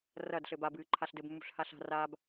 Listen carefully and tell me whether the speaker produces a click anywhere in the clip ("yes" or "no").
yes